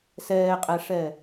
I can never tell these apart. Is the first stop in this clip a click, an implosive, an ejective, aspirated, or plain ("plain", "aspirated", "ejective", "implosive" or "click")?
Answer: ejective